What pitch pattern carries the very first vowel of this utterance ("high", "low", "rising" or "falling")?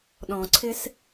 low